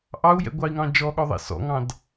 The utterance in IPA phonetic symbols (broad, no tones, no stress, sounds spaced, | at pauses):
ʔ ɑ u̯ j ɛ̰ ɡʷ ɑ i̯ ŋ ɑ̃ d͡ʒ ɔ ɠ ɔ ðˤ ɛ̰ s ɔ̰ ŋ ɑ̃ d